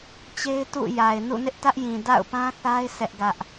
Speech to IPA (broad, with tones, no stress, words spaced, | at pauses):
t͡ɕe˦ɪ̯tṵ˦˨ja˨ɪ̯ nṵ˦˨nɪ˦ʔtä˦ʔjĩ˨ da̰˦˨ʊ̯pã˦θa˦ɪ̯ sɛ˦ʔɡä˦ʔ